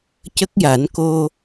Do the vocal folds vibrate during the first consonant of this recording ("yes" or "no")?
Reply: no